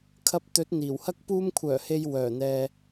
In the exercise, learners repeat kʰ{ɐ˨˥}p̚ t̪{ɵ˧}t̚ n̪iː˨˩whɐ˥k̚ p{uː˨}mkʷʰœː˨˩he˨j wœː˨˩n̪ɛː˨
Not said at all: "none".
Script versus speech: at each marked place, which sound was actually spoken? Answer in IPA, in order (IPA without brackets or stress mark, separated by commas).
ɐ˧, ɵ˨˥, uː˧